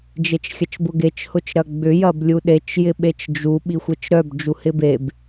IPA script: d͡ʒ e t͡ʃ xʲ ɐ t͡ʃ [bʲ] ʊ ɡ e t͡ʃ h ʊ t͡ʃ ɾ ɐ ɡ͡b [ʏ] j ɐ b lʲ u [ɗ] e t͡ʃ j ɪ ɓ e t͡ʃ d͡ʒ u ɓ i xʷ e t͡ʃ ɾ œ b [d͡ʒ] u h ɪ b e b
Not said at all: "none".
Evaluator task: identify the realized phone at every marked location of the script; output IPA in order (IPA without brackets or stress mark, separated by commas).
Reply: b, ʏ, ɗ, d͡ʒ